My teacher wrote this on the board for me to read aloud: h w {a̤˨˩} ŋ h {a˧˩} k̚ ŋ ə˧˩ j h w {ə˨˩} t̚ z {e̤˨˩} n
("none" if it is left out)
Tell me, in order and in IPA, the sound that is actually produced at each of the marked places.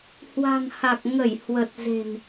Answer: a̤˨˩, a˨˩, ə˨˩, e̤˨˩

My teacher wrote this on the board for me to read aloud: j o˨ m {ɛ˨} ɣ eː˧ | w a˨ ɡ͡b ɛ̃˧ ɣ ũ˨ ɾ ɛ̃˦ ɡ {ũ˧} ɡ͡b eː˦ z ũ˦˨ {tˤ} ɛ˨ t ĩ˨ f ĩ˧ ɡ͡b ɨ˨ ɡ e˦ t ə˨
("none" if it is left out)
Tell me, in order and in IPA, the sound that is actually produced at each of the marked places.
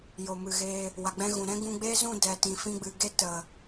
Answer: ɨ˨, ũ˧, d

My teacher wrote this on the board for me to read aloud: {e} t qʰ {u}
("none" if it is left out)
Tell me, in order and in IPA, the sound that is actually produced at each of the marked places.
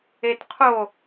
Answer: e, o

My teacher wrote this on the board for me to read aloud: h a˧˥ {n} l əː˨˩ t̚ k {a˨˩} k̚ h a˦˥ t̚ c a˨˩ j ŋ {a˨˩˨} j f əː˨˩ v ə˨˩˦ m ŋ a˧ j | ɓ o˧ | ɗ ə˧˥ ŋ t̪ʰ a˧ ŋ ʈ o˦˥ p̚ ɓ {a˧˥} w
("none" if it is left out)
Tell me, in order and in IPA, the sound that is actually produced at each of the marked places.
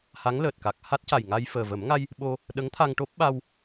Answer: ŋ, a˨˩, a˧, a˧

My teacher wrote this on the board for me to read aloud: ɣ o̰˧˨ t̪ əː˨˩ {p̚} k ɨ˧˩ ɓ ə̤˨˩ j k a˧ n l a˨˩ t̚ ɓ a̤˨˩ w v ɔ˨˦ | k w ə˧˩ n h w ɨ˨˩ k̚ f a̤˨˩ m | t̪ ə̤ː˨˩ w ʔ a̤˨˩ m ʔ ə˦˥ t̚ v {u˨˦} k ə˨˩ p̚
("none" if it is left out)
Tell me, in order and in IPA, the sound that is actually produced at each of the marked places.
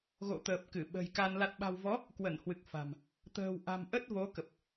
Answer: p̚, o˨˦

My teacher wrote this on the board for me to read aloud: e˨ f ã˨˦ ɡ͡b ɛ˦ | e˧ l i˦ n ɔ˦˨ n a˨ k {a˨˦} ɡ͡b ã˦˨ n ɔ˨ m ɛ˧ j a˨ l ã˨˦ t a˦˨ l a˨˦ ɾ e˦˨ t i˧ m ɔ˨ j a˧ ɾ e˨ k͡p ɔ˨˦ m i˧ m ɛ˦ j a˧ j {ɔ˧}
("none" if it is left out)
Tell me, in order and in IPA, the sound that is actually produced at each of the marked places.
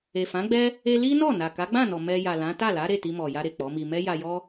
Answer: a˨˦, ɔ˦

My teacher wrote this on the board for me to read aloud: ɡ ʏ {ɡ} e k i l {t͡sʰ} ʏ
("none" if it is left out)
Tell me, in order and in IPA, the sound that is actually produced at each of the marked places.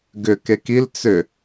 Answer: k, t͡s

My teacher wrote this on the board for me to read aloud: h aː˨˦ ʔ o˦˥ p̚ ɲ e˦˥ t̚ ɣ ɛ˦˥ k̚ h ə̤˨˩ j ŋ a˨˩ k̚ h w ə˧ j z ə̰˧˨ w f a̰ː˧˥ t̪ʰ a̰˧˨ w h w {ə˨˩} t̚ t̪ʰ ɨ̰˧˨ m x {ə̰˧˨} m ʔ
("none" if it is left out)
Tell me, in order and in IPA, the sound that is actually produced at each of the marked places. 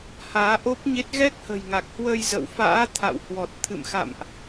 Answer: ɔ˨˩, a̰˧˨

